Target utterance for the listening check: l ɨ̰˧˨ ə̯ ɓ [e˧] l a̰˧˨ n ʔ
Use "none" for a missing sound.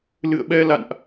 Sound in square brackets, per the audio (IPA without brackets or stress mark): ɛ˧